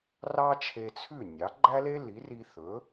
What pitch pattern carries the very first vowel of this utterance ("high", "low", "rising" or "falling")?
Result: high